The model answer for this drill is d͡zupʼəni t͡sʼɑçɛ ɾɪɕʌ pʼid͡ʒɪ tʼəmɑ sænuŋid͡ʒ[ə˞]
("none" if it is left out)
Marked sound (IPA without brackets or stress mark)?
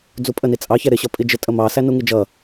ʌ